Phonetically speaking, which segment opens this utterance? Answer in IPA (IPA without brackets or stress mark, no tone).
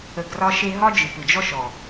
ə